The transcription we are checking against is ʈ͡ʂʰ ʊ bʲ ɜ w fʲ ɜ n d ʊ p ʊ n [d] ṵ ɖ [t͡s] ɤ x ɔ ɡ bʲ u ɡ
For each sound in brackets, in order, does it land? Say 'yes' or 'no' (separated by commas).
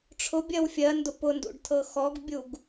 yes, no